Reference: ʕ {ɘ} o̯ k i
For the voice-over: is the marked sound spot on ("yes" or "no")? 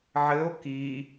yes